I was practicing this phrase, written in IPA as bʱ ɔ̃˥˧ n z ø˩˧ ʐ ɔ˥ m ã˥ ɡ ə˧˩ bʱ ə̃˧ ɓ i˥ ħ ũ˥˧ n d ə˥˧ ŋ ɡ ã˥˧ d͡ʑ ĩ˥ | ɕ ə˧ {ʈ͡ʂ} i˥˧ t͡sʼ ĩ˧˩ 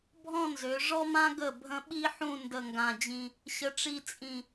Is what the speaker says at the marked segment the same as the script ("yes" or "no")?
yes